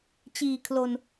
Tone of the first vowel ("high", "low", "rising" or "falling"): low